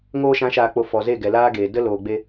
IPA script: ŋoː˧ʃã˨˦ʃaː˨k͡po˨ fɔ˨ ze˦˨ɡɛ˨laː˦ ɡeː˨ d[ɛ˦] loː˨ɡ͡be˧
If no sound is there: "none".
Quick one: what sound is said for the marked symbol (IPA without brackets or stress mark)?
ə˦